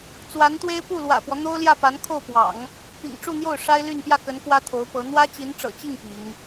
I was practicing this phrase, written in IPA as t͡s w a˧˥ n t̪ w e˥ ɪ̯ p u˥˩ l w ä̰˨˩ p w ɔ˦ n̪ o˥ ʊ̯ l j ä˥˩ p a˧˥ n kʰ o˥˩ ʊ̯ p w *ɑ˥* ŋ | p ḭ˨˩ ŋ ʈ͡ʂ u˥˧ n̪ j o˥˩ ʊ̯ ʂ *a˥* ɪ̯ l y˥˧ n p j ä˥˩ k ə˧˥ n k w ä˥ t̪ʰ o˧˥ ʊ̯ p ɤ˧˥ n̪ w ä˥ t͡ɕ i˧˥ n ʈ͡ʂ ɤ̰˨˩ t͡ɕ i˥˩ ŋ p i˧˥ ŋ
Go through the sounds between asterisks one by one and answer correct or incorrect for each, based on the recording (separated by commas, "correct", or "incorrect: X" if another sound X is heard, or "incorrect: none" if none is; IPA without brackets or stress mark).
incorrect: ɑ̰˨˩˦, correct